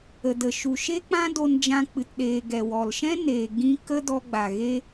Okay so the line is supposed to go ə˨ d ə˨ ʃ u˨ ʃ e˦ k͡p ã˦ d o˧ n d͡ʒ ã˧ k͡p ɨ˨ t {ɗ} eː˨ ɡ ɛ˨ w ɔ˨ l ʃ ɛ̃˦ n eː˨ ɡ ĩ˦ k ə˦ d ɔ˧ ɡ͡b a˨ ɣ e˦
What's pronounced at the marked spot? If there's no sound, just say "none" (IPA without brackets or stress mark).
ɗ